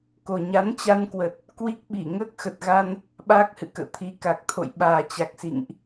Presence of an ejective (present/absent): absent